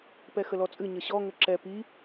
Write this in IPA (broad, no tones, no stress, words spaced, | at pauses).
pɛxəlɔt͡sʼɨ ɲəɕɔ ŋəǁɛ pi